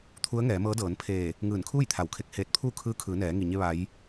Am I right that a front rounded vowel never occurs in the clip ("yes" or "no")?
yes